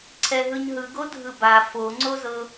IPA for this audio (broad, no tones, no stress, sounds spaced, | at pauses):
ǀʰ ɛ ɦ ɯ ɲ ɦ ɯ ɡ o dʱ ɯ b a f o ŋ͡ǀ o z ɤ